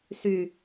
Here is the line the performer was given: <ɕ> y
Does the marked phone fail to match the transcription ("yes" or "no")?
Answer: yes